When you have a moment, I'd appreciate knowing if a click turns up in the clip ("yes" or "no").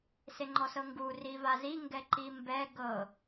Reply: yes